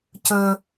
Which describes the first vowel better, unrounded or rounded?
rounded